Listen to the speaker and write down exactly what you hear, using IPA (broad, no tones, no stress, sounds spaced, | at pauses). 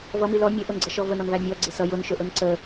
v ʌ m i l ɔ mʲ ə ʔ ʊ n ɡ͡ǀ ʌ ʃ ɔ v ə n ɔ n v æ mʲ ɔ ɡ͡ǀ ɪ s ʌ j ʊ n ʃ ʊ ʔ ʊ n ǀ ə